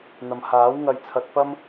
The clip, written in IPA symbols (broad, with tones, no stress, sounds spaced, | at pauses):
n̪ ɐ˨ m h aː˨˥ w ŋ ɐ˧ j t͡sʰ ɐ˧ t̚ p ɐ˥ m